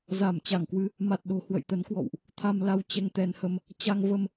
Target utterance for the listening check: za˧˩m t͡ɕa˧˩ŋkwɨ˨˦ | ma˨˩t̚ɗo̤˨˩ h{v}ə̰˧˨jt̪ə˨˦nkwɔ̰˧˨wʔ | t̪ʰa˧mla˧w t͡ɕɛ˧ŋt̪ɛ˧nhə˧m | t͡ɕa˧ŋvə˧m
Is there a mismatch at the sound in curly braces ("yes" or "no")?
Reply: yes